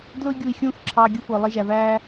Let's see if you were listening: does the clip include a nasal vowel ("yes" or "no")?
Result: yes